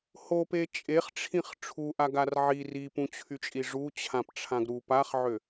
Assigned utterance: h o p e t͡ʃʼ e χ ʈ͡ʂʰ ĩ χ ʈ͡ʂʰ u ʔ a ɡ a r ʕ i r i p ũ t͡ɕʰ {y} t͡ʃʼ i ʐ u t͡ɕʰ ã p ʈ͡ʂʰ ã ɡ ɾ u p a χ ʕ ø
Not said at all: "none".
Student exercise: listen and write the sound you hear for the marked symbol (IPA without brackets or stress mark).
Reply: y